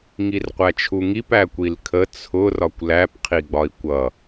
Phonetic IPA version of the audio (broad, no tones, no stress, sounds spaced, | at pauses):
ŋ i r qʷ æ t͡ʃʰ u ŋ i p æ kʷ i l kʰ ə t͡sʰ ʊ r ɒ kʷ l æ p qʰ i ɡ͡b ɒ i̯ kʷ ʌ